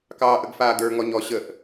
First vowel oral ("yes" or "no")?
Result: yes